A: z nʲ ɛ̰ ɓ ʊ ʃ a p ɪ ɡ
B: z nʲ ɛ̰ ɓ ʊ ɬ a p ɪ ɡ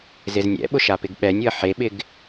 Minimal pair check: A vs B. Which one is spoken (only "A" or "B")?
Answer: A